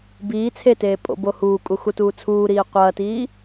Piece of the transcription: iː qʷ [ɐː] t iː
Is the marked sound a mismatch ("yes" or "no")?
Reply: no